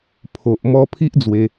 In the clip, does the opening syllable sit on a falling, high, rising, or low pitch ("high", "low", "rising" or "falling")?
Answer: low